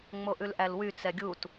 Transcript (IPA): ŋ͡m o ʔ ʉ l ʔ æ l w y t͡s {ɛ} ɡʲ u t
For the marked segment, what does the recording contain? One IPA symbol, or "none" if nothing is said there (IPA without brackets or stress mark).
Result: ɛ